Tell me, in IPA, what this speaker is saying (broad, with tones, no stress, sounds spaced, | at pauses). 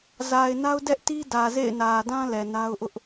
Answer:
z a˨ ɪ̯ n a˦ ʊ̯ d ɛ˦ ʔ t i˦ d ä˨ z ḛ˦˨ ɪ̯ n ä˨ d ã˦ l ɛ˨ n a˦ ʊ̯ ʔ ʊ˦ ʔ